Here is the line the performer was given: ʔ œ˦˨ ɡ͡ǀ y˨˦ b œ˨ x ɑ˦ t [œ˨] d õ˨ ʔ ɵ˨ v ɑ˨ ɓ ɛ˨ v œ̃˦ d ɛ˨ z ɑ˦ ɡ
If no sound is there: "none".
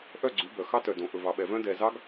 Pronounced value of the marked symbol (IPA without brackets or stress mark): œ˨